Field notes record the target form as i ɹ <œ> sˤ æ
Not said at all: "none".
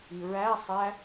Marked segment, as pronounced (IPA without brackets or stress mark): æ